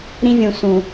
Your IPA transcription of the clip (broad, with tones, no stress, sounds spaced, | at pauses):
ɾ ĩ˦ vʲ ũ˨ s ũ˨